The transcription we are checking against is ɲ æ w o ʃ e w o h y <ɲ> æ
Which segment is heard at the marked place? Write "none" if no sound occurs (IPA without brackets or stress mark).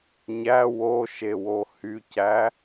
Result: c